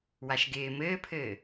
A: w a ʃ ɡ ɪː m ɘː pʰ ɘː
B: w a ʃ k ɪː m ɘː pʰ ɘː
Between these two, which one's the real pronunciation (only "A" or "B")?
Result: A